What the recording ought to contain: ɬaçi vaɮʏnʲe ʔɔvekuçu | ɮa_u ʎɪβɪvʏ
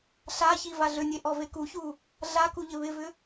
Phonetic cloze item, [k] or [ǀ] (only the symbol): k